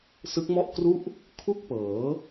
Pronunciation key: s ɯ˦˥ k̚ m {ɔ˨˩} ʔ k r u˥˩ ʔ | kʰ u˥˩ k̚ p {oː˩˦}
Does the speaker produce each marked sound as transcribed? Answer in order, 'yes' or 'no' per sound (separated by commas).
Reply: no, no